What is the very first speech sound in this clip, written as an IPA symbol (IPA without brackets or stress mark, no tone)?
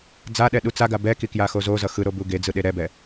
d͡z